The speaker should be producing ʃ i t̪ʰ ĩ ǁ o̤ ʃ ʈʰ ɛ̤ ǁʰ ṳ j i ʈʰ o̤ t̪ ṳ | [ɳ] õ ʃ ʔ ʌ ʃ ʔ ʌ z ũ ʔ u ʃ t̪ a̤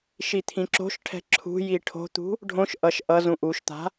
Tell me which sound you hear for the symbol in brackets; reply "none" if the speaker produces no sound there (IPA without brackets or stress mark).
ɖʱ